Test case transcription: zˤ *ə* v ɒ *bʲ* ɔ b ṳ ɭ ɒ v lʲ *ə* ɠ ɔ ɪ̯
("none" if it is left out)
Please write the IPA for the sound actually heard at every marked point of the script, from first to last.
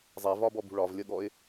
ɛ, b, ə

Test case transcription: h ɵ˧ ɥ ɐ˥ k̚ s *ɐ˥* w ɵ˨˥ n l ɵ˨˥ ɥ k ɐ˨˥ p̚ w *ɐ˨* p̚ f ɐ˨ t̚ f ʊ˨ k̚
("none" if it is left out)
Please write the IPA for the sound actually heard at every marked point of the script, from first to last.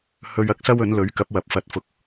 ɐ˥, ɐ˨

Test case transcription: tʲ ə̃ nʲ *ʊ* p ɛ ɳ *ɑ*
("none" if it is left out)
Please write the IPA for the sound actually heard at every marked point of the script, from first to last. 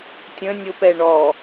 ʊ, ɔ

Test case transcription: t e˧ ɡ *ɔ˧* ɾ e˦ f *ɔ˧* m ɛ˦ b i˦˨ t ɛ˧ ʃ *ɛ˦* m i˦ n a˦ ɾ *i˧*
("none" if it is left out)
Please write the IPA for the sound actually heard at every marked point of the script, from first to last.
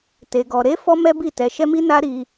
ɔ˧, ɔ˦, ɛ˦, i˧

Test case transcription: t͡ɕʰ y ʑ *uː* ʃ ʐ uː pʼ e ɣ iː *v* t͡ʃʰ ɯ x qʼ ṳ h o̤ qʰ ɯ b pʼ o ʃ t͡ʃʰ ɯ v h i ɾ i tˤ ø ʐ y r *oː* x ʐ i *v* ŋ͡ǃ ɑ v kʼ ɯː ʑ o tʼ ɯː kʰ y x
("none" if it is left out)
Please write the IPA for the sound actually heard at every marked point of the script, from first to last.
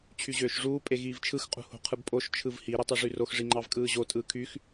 øː, v, o, none

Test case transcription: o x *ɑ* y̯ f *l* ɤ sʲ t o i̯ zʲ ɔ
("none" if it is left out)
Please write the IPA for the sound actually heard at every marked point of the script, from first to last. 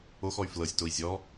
ɔ, l

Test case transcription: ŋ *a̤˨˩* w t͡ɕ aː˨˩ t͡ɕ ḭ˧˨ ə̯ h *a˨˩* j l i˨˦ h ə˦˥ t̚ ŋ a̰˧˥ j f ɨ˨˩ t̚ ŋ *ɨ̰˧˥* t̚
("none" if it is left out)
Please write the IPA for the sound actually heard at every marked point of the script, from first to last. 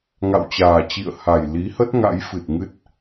a̰˧˨, a˨˩, ɨ˦˥

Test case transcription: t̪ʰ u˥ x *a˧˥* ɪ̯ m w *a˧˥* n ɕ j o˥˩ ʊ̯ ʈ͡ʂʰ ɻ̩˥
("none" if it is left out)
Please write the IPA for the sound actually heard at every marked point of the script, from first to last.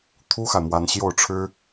a˨, a˥

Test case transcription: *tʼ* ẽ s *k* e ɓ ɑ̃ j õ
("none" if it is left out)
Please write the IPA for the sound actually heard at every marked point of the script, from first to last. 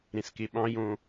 ɾ, k

